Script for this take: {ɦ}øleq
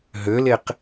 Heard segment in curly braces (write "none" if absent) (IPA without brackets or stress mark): ɦ